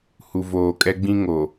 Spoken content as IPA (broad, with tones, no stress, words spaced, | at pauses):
hu˨voː˨kʼɛ˦ɡ͡bĩ˦ ŋo˨